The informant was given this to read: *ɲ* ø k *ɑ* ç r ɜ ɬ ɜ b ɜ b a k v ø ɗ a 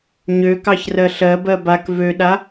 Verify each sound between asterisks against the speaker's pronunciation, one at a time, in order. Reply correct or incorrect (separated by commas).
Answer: correct, correct